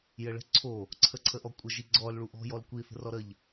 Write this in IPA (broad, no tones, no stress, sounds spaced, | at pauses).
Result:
j ə ɭ ə̤ ǀʰ o | ǀʰ ə ǀʰ ə ʔ ɔ kʷʼ ə ʒ i ɡ͡ǀ ɔ l ɭ u ʔ ɔ̤ j ɔ l kʷ i θ ə̤ r ɔ ɾ ə ʎ